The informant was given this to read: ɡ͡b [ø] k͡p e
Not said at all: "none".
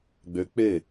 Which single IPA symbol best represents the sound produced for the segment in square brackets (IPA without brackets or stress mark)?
ø